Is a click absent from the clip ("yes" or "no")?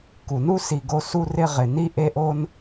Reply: yes